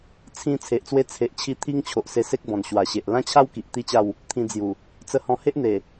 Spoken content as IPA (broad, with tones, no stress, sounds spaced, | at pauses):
t͡sʰ ĩ˧ t͡sʰ e˨ ʔ t͡s w e˦ t͡sʰ e˨ ʔ t͡ɕʰ i˧ t̪ʰ i˦ ŋ t͡ɕʰ o˨ ʔ s e˧ s e˦ k̚ b ɔ̃˨˩ n ɕ w a˨˩ ɕ e˨ ʔ l ã˦ t͡ɕʰ a˦ w k i˨ ʔ t̪ i˦ t͡ɕ a˥˧ w | t̪ʰ ĩ˧ d͡z j u˨˩ | t͡s ə˧ h ɔ̃˧ h e˦ ʔ n̪ e˨˩